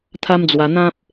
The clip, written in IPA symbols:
t̪ʰa˦md͡zwa˧ n̪ã˦p̚

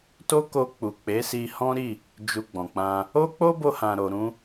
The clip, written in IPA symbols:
to˦ko˧ k͡pu˨k͡pe˨˦si˧ hɔ̃˦ɾi˦˨ | d͡ʒu˧ɡ͡bɔ̃˨k͡pã˧ | o˦k͡po˦bo˧hã˨ ɾo˨ɾũ˧

